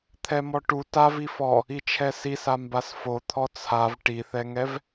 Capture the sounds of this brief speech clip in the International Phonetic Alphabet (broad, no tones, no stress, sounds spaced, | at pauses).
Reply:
t̪ʰ ɛ m ɔ ʈ u t a v i f ɔ | i t͡ʃʰ ɛ s i s a m b a s f o t̪ʰ ɔ t͡sʰ a v ʈ i θ ɛ ŋ ɛ v